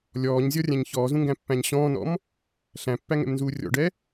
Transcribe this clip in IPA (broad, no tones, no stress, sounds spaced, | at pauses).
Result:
lʲ ɔː ɲ zʲ ɔ rʲ æ̃ ɲ ç ɔː z ũ ŋ ɡ æ̃ pː æ̃ ɲ ɕ ɔ̃ː n ɔ̰ m | ɬ æ̃ pː æ ŋ ɛ̰ m n z uː rʲ ɔ̰ ɖ ɛ